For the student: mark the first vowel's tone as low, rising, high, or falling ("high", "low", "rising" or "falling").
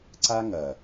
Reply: high